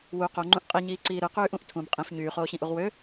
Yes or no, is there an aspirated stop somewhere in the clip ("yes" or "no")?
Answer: yes